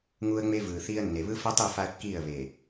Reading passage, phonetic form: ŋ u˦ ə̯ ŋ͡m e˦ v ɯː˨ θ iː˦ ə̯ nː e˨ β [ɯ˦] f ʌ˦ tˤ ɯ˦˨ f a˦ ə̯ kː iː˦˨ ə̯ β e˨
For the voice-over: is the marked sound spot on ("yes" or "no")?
yes